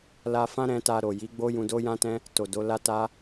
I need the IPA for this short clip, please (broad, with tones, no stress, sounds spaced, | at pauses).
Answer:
l a˧ f ã˦ ɾ ɛ̃˧ t a˧ ɾ o˨ j i˨˦ ɡ͡b o˦ j ũ˧ d o˦ j ã˦ t ɛ̃˦ | t o˨ d o˨˦ l a˦ t a˦